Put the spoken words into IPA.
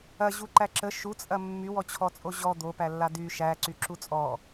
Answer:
ɐ ʑ u ǃ æ ǁ ə ʃ u t͡sʼ ɐ mː y w ɔ t͡ɕʰ ɔ t͡sʼ o ʑ ɔ d̪ o p æ lː a d y ʃ æ ǀ y ǁ u t͡sʼ ɔ

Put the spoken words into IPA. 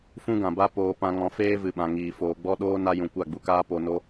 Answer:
f ũ˦ ɡ ã˨ b a˦ p oː˧ p ã˧ ŋ ɔ̃˧ f eː˦ v ɨ˨ ɓ ã˨ ŋ iː˨ f oː˨ ɡ͡b ɔ˦ ɗ oː˦ n a˧ j ũ˨ kʷ a˦˨ ɡ͡b u˧ k aː˦ p o˨ n o˧

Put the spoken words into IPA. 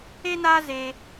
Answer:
e˦ n aː˦ z e˦

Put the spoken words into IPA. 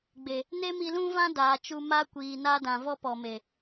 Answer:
ɡ͡b e˨ | n e˦ m i˧ l ũ˦ v ã˦ d aː˨ t͡ʃ u˧ m a˦ kʷ iː˨ n a˧ d ã˨ v ɔ˧ p ɔ˨ m e˨

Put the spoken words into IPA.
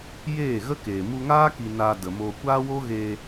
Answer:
j eː˦˨ ɣ ə˦ k eː˨ m u˧ ŋ aː˦ k i˧ n aː˧ d ə˨ m oː˧ kʷ aː˦ w o˦ ɣ eː˧

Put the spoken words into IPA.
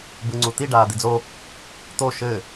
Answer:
b ɯ ŋ͡ǀ u t̪ i ɖ aː d̪ i d͡z o | t̪ o ʃ ɘː

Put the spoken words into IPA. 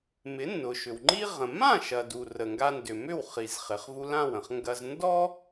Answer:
m ɪ˩˥ nː ʊ˩ ʃ ʏ˩ w ŋ͡ǃ i˥ ʁ ə̃˩ m ã˥˩ ʃ ɐ˩ d u˩ r ə˩ ŋ ɡ a˧ n d ʏ˩ m ʏ˥˩ w χ i˩ z χ ɪ˩ χ v u˧ l ã˥˩ w ə̃˩ χ ŋ ɡ ɐ˧ z n d ɔ˥

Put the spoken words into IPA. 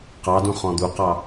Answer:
q ɑ d ũ χ ɔ̃ d̪ u q ɑ

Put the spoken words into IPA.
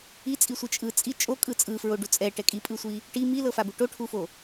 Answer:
i t͡sʼ i sʷ ɯ t͡ʃʼ ɯ t͡sʼ i t͡ʃʼ o kʼ ɯ t͡sʼ ɯ f ɹ o ɖ u t͡sʼ ɛ ʈ ɛ kʼ i pʼ ɯ sʷ i | ʈ i m i l ɤ f a b u ʈ o ʈʰ u f o

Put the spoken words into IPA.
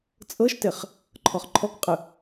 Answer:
t͡sʼ ɤ ʃ t e χ | ǃʰ ɔ χ ǃʰ ɔ k qʼ ɯ

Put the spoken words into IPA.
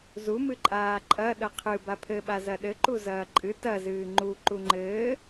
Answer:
z u m ɨ ǃʼ aː ǃʼ ɐ ɗ ɐ qʰ ɨ b a pʰ ɘ ɓ a z ɐ ɗ ɘ ǃ u z ɐː ǃʼ ɨ t ɐ z ɨː ŋ͡ǃ u ǃ u ŋ͡ǃ ɘː

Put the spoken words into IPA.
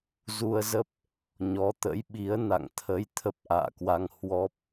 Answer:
z u˧ ə̯ z ə˦˥ p̚ | ɲ ɔ˨˦ t̪ ə̰˧˥ j ɓ i˨˦ ə̯ n a̰˧˨ ŋ t̪ʰ ə˨˦ j t̪ʰ ə˦˥ p̚ ʔ a̰ː˧˨ k w a˧ ŋ h w ɔ˦˥ p̚

